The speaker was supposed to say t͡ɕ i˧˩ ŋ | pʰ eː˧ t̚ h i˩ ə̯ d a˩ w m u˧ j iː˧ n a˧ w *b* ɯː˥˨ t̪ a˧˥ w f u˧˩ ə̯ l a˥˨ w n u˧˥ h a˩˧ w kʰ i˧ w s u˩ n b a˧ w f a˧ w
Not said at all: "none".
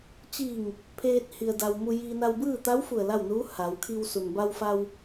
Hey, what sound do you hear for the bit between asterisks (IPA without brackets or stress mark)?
b